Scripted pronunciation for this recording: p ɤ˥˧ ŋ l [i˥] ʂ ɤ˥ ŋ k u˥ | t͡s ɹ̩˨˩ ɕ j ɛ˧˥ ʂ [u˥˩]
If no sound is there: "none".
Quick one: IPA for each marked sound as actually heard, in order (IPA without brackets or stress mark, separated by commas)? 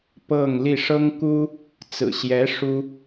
i˥˩, u˥